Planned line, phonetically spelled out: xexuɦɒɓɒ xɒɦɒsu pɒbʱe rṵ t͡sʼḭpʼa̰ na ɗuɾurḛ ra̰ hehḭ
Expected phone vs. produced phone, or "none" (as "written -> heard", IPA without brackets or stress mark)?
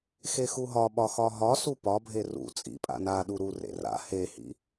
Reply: none